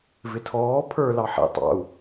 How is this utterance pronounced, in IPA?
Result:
v ɪ tʰ ɔː pʰ ə˞ l ɑ ħ ḭ tˤ ɑ̰ u̯

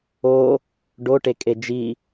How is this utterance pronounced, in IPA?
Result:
o | ɖ o ʈ e kʼ e d͡ʒ i

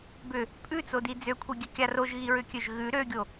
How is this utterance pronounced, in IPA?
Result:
b ʏ | pʼ ʉ t͡s o d i d͡z ø kʷʰ i ɡʲ ø kʲ a r o ʒ ɣ i ɹ ʏ kʲ ø ʒ ɣ ʉ ɾ ø ɡʲ o

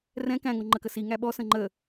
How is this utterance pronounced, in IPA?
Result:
r ɛ̃ k æ̃ ŋ o ŋ͡ǃ ə k ə s i ŋ æ ɓ ɔ s ə̃ ŋ͡ǃ ə

